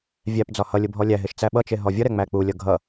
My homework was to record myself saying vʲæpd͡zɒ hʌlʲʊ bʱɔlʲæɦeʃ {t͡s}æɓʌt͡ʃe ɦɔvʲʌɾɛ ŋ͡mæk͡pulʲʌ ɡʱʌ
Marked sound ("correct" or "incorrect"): correct